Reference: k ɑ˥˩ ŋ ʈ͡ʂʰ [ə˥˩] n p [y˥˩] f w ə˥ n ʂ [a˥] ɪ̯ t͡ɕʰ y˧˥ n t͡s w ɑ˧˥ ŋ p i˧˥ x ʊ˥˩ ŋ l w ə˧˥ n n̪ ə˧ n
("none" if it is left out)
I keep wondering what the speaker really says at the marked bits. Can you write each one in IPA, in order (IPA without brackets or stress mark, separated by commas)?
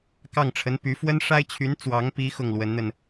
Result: ə˧˥, y˧˥, a˥